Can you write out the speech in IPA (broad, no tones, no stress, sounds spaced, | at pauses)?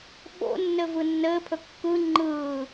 ɓ o̰ nː ɘ v ɯ nː ɘː pʰ ɵ kː ɯ ŋ͡ǃ ɯː